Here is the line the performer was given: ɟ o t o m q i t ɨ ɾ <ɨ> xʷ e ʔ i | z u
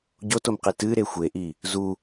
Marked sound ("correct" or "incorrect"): incorrect